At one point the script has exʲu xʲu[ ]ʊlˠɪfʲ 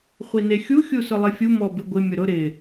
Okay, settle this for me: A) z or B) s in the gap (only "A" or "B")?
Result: B